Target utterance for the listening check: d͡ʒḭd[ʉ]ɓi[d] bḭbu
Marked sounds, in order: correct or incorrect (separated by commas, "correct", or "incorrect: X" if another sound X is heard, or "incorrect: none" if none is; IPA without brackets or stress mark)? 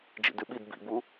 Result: correct, correct